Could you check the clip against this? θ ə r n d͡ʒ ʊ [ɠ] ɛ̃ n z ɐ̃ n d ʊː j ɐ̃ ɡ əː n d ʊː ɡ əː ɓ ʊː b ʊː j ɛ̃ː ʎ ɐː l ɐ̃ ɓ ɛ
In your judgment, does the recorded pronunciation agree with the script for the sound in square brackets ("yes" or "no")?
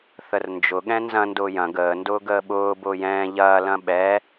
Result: yes